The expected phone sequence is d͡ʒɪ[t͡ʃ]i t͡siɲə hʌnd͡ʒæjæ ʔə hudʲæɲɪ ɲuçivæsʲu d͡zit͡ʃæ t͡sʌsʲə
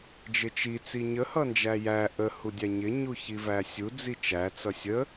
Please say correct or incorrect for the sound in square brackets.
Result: correct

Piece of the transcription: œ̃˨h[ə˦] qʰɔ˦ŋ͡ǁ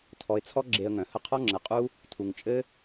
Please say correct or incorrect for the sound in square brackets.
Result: correct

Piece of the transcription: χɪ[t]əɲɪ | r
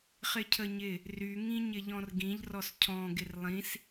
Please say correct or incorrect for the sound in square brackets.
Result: incorrect: cʰ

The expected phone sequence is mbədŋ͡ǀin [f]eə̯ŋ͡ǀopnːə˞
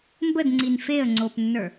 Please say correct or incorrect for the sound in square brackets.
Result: correct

